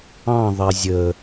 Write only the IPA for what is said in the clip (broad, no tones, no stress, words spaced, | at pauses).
ɑ̃ðˤɛ zʲə